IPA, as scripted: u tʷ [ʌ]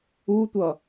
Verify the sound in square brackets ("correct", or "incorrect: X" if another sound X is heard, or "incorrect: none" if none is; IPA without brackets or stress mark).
correct